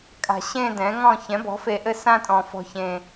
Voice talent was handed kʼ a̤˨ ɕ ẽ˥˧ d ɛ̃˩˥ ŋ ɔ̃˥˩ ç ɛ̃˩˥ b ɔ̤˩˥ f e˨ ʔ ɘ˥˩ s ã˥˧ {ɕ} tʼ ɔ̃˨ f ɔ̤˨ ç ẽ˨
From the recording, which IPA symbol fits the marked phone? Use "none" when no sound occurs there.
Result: none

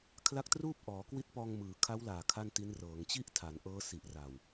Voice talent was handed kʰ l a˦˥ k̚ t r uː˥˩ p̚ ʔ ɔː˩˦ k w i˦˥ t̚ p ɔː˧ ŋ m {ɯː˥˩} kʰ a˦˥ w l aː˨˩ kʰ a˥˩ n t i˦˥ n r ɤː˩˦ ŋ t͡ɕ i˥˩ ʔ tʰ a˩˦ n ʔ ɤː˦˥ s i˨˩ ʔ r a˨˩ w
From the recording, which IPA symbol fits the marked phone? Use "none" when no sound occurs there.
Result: ɯː˩˦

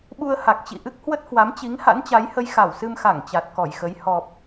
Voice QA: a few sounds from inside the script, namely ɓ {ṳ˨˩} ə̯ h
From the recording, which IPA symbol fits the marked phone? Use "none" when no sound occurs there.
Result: u˧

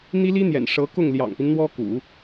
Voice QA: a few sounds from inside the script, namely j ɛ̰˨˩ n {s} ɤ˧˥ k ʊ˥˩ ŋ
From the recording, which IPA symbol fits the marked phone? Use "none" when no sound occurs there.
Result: ʂ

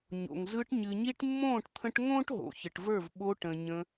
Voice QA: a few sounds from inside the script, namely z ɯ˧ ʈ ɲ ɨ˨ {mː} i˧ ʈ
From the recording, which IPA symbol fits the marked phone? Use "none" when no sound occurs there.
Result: ɲ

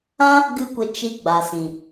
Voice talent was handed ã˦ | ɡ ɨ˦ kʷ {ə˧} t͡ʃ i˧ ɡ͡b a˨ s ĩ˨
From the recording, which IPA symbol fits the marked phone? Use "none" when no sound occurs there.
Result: ə˧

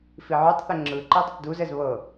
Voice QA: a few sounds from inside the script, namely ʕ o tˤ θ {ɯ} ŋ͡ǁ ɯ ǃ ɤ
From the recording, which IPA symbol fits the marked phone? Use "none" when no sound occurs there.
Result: ə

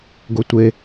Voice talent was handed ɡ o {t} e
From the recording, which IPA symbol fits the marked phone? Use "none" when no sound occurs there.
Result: tʷ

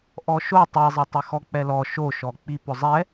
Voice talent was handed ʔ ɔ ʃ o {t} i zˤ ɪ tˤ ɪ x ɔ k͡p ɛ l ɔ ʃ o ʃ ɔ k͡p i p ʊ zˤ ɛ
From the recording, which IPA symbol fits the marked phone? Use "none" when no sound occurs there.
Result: tˤ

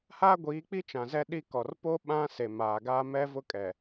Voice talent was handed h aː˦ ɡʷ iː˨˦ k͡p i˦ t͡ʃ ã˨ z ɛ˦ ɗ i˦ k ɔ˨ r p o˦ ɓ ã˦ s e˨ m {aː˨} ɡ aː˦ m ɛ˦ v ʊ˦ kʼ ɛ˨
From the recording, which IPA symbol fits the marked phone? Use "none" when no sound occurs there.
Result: aː˨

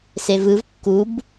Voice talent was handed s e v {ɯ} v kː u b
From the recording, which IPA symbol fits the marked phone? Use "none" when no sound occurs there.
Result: ɯ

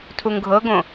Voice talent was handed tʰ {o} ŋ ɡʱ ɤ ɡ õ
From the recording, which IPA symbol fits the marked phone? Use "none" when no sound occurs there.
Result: u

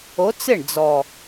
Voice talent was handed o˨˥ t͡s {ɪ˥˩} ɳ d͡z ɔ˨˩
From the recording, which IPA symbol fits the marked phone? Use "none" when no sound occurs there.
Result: ɪ˥˩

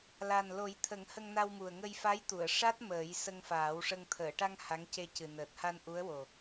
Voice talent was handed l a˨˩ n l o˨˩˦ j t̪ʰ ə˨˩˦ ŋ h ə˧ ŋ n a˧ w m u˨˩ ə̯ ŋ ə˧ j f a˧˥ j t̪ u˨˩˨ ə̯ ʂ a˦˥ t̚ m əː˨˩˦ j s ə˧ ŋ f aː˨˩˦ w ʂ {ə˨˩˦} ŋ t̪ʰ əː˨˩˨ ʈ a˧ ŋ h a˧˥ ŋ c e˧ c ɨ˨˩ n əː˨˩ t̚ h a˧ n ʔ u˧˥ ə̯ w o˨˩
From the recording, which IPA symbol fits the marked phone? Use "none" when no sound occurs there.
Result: ə˧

